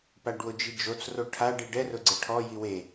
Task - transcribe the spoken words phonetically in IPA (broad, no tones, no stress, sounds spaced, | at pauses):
p a ɖ w ʊ d͡ʒ i d͡ʒ o t͡s r o ʈʰ a ɖ i ɖ ɛ r ʊ ɡ͡ǀ e ʈʰ ɔ j i w e